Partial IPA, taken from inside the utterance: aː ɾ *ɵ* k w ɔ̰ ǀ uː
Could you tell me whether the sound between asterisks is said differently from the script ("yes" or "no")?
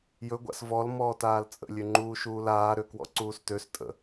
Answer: yes